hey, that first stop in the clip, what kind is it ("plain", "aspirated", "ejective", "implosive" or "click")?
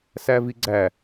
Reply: click